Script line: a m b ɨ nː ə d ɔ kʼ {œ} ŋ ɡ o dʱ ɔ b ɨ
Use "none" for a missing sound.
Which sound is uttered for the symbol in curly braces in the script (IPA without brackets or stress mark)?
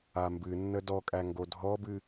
æ